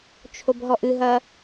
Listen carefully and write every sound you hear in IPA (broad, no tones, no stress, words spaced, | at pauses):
t͡ʃʰobɦɔʔɨɦɐ